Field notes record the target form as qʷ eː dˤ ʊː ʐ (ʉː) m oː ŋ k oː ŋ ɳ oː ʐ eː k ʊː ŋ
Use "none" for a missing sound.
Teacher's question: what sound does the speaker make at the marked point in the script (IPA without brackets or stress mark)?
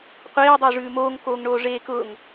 ʉː